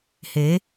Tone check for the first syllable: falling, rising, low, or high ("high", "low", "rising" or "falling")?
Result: rising